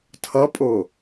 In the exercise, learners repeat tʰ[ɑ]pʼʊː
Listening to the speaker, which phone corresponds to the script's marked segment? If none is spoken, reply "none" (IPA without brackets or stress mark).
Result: ʌ